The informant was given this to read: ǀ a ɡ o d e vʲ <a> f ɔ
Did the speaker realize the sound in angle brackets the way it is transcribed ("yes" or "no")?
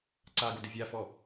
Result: yes